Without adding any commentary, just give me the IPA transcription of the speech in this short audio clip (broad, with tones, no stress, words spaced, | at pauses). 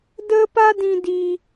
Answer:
də˧pa˧ dĩ˧di˧